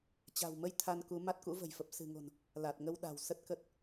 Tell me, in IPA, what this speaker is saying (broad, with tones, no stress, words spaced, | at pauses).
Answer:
t͡ɕa̤˨˩wmə˧j t̪ʰa˧nku˨˦ ma˦˥t̚kṵ˧˥və̤˨˩jfə˨˩p̚ sɨ̤˨˩ŋo̤˨˩n | la˨˩t̚ŋə˧wɗa̤˨˩w sə˦˥t̚kə˦˥t̚